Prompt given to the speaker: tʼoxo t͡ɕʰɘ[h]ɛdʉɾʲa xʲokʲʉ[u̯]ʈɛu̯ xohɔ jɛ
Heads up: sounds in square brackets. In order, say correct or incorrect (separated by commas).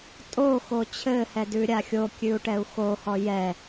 correct, correct